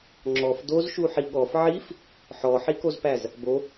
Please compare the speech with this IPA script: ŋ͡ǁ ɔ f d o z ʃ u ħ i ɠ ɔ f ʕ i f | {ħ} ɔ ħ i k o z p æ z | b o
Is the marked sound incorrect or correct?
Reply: correct